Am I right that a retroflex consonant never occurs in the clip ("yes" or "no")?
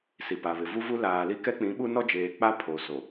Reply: yes